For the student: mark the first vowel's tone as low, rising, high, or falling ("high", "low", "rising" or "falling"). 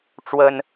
high